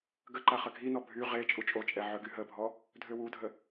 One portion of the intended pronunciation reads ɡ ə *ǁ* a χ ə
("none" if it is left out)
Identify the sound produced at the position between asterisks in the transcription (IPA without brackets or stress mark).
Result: ǃ